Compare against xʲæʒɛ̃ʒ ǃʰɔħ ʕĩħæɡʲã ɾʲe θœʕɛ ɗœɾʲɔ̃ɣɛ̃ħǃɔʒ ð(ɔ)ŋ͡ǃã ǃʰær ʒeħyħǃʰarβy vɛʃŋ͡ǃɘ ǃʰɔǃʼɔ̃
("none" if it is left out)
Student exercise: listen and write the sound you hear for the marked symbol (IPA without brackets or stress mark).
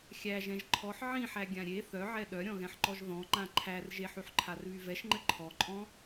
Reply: ɔ̃